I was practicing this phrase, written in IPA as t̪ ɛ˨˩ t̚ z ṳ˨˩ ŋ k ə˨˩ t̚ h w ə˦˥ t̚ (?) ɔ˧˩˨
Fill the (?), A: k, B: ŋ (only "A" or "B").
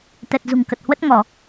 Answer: B